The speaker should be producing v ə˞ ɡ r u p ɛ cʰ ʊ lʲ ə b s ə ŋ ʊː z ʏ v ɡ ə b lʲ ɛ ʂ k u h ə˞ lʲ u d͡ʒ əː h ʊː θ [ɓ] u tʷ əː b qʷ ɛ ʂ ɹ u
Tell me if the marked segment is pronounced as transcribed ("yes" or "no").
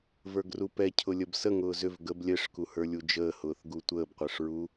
no